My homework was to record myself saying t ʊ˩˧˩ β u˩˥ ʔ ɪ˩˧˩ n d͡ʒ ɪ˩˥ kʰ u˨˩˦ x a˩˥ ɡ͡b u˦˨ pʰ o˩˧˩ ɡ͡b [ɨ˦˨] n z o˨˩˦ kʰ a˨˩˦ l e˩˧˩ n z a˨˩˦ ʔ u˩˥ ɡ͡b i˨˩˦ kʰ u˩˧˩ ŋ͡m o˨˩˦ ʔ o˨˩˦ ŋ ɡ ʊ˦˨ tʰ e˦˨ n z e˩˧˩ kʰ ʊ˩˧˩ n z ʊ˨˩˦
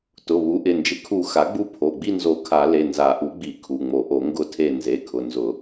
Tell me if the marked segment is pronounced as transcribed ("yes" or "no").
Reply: no